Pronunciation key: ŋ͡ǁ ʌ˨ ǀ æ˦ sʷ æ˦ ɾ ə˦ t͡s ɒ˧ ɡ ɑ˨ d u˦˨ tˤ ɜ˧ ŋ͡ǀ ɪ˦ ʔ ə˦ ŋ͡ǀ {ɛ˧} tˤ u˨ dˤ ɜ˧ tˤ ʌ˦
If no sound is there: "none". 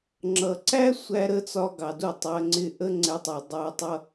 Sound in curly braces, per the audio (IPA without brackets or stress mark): ɛ˧